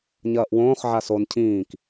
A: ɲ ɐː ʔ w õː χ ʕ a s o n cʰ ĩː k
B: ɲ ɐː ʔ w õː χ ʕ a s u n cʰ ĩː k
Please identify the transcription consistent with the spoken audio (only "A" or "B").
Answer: A